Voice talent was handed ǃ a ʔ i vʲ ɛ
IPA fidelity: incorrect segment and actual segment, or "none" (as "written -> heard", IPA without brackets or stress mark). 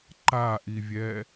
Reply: none